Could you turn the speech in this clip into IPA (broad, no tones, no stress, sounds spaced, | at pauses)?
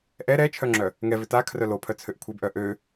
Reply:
ʔ ɛ ɾ ɛ t͡ʃʰ œ ŋ͡ǁ œ | ŋ ɛ v ʏ t a kʰ r œ l o pʰ œ t͡sʰ ø ʔ kʷʰ e b ʔ œ ʔ ø